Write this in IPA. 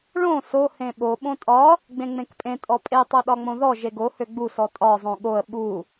ɭ õ s o h ẽ ɓ o ɓ õ tʼ ɒ | ɡ͡b ẽ ŋ͡m ẽ k pʼ ẽ tʼ ɔ pʼ e tˤ o ɗ ɒ ŋ͡m õ ð ɔ ʒ e ɡ o h ø ɡ͡b u s ɔ tʼ ɒ zˤ õ ɠ o ə̯ ɓ u

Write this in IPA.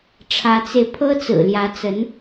ʈ͡ʂʰ ä˧˥ t͡s e˧ ɪ̯ pʰ ɤ˥ t͡s ɹ̩˨˩ l j ä˧˥ t͡s ə˧˥ n

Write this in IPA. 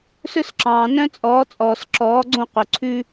s ɵ˦ s ǁ ɑ̃ː˨ n œ̃˦ t͡sʼ ɔː˨˦ t͡sʼ ɔː˨ s ǁ ɔː˨˦ ɡ͡ǀ õ˦˨ q ɵ˨ ǀʰ ʉ˦

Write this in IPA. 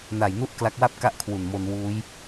n a˨˩ j n u˥˩ ʔ k l a˦˥ k̚ w a˥˩ p̚ k a˥˩ ʔ kʰ w u˨˩ n m o˧ n w uː˦˥ j

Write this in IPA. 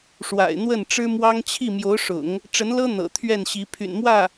ʂ w a̰˨˩ ɪ̯ n̪ w ə˥˩ n ʈ͡ʂ ɻ̩˥ m w ɑ˥ ŋ t͡ɕʰ i˥˩ m j o˧˥ ʊ̯ ʂ ʊ̰˨˩˦ ŋ | ʈ͡ʂ ə˧˥ n l ɤ˥ n̪ ɤ̰˨˩ t̪ʰ ɥ ɛ˥˩ n ɕ i˧˥ pʰ y̰˨˩ n m w ä˥˩

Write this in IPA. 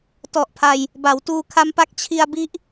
t ɔ˨˩ ʔ pʰ a˧ j | b a˩˦ w t uː˧ kʰ a˦˥ m p a˦˥ k̚ t͡ɕʰ i˧ a̯ b i˦˥ ʔ

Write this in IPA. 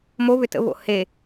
m o β ʏ t ə̰ β o̰ h e

